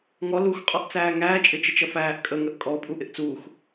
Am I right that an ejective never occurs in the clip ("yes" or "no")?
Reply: no